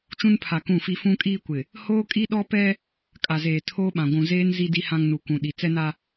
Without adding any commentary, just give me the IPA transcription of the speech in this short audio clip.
t͡ʃ ũ˦ n pʰ a˨ k ũ˦˨ f i˦ f ũ˦ kʼ iː˦ kʷ ɪ˨ | h oː˦ kʼ i˦ ɗ ɔ˦ p ɛ˦ | kʼ a˨ z eː˨ tʰ oː˦ ɓ ã˨ ɡʷ ũ˨ z eː˦ n z i˦ d i˦ h ã˦ ŋ n u˨ kʷ ũ˨ ɗ i˨ t͡s ɛ˦ n a˦

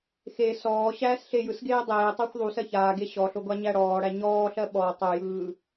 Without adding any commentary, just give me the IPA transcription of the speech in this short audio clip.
x e s ɔː ɕ æː s ɬ e j ɯ s ɡ eː dˤ eː tˤ ɜ xʷ ðˤ u s ɜ ç aː ɡ e ɕ ɔ ɬ o ɡʷ a ɲ æ ɽ ɔː ɽ æ ɲ ɔː ɬ ɜ ɓ ɔ tˤ o j ɯː

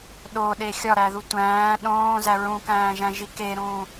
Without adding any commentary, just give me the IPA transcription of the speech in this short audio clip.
ɗ o ɗ e xʲ ɒ ɾ æ ð u tʷ æ̃ː ɗ õː z æ ɹ ũ k æ̃ː ʒ æ̃ ʒ i k e ɾ ũː

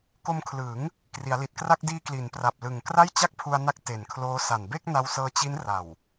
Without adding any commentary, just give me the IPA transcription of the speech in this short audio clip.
k o˧ m kʰ l ɯː˩˦ ŋ | k r i˩˦ a̯ l i˨˩ t̚ k r a˥˩ k̚ d iː˧ k l i˩˦ n p r a˨˩ p̚ l ɯ˨˩ ŋ k r a˥˩ j t͡ɕ a˥˩ k̚ pʰ u˧ a̯ n a˦˥ k̚ t e˨˩ n kʰ l oː˦˥ s a˨˩ n b e˥˩ k̚ n a˧ w s ɤː˧ t͡ɕ i˦˥ n r a˨˩ w

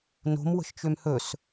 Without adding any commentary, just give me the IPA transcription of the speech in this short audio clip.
n o̤ m w ə̤ ʃ t͡ʃ ø m h ɵ s

